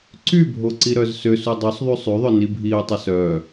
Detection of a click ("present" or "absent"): present